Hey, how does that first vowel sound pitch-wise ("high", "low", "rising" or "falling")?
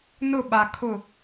falling